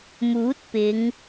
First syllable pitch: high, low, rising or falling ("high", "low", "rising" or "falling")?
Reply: rising